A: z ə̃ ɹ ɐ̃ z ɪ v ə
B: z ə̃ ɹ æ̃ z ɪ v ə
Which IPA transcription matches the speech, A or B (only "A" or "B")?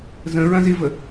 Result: A